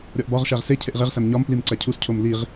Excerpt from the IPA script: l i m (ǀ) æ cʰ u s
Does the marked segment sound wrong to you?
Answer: no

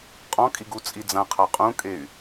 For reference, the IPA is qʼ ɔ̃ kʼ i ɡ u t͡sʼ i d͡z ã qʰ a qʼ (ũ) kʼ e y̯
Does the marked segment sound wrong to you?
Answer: no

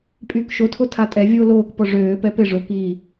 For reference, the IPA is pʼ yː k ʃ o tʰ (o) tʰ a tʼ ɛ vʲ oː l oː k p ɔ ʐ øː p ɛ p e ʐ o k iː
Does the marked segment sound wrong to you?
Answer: no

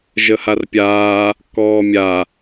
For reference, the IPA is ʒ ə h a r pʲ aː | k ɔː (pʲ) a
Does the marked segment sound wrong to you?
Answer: yes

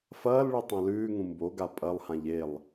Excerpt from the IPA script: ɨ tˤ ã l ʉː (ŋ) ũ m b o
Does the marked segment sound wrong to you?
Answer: no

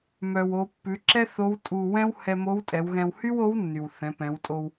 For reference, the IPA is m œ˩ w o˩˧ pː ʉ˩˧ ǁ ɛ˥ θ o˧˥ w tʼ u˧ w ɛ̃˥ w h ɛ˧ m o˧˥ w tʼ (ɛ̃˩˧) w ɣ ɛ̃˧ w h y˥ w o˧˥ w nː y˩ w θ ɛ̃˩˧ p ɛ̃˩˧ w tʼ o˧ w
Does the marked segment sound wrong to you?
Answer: yes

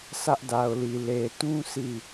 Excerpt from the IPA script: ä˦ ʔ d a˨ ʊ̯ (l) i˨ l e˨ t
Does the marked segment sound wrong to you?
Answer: no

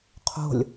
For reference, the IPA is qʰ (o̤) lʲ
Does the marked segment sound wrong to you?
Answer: no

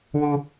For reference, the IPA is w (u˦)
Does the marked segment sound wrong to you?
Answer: no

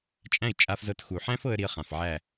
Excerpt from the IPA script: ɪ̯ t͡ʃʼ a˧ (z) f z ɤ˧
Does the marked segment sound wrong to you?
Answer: yes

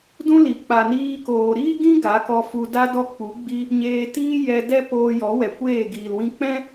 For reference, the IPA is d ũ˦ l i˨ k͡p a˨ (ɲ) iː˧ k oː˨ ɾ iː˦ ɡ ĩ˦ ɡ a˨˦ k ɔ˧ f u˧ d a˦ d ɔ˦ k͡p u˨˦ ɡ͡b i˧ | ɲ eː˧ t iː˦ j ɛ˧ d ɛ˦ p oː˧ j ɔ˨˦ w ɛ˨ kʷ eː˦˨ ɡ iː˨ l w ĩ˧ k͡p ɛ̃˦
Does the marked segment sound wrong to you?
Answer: yes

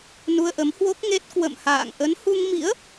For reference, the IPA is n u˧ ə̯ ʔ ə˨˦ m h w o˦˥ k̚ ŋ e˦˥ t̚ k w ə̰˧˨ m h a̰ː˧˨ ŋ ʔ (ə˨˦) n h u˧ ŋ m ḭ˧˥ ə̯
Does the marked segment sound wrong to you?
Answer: no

